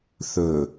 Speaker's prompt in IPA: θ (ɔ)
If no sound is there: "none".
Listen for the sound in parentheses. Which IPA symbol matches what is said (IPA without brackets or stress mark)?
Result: ɵ